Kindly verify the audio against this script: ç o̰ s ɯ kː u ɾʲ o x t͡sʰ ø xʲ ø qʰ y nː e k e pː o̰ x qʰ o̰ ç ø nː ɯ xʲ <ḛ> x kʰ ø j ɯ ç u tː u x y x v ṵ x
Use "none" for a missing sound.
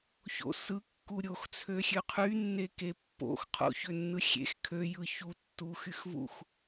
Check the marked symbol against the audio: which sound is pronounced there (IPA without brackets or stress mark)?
ḛ